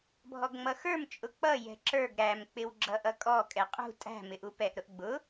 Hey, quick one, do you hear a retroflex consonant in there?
no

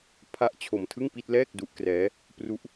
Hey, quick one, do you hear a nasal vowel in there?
no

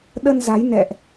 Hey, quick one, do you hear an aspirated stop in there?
no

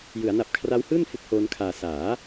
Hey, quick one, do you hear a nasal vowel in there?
no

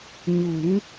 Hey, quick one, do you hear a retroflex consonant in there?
no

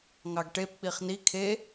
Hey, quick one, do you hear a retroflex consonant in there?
yes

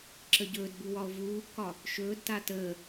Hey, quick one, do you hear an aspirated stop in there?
no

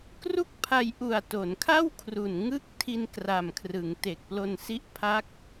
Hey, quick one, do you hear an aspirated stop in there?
yes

